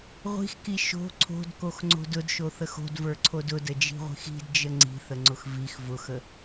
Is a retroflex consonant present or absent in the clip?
absent